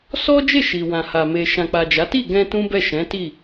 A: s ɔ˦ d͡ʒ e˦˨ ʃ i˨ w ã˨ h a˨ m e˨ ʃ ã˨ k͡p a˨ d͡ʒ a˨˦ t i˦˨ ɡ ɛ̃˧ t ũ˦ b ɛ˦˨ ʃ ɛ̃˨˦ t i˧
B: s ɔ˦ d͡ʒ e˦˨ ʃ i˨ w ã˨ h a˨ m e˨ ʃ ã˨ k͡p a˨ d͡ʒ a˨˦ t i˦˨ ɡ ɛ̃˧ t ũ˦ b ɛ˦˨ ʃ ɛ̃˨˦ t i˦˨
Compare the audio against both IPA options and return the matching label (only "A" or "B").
B